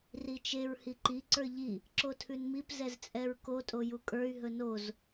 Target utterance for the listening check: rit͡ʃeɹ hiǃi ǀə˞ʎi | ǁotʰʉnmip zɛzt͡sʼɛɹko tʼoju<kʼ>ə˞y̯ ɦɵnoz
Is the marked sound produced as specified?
yes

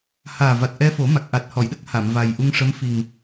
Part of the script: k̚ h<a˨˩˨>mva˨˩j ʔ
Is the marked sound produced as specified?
yes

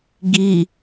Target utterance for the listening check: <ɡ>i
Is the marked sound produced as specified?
yes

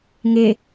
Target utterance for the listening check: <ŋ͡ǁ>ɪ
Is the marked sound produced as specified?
no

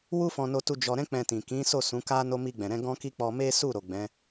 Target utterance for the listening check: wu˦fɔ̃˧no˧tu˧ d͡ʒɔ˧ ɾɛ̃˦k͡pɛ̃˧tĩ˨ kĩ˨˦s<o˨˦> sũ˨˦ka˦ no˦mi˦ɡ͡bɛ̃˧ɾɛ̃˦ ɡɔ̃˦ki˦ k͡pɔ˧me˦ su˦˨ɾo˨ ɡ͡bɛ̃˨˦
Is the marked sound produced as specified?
no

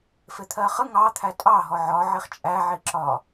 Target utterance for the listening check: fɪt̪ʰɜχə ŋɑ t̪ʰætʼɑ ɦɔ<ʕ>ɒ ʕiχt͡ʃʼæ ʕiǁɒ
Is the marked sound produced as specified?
yes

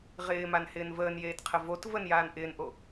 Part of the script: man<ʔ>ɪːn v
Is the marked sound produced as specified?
no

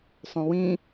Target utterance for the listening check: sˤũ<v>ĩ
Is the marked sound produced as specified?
no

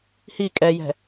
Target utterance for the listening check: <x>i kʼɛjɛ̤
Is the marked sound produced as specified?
no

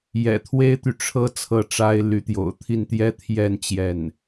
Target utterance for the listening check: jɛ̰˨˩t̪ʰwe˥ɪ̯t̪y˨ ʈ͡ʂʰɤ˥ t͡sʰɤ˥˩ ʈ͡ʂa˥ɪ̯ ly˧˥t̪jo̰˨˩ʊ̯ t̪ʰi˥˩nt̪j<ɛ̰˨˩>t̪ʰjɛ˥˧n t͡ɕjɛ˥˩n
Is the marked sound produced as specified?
no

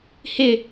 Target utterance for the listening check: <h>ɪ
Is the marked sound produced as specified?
yes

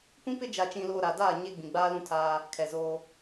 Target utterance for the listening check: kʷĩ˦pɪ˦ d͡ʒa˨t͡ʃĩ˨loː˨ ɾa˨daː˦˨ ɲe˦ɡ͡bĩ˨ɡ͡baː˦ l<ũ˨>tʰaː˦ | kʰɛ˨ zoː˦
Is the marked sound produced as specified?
no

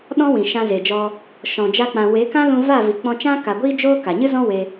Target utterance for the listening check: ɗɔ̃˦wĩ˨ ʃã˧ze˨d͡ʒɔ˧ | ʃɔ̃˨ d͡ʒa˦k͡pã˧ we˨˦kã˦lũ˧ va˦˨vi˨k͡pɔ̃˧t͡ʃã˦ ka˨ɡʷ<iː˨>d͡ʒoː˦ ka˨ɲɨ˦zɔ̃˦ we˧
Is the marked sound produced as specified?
no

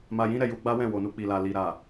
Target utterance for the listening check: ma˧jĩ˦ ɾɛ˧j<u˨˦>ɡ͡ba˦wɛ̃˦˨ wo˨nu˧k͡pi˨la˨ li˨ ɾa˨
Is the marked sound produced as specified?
no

